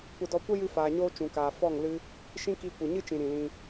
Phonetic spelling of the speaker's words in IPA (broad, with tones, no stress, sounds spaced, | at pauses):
kʷ ə˦ d ɔ˦ kʷ ə˦ j ɨ˧ f aː˨ ɲ oː˧ t͡ʃ ũ˨ k aː˨ f ɔ˦˨ ŋ l ɨ˦ | ʃ ĩ˦ k i˧ kʷ ɨ˨ ɲ ɨ˦ t͡ʃ ĩ˨ ɾ ĩ˨ l ĩ˧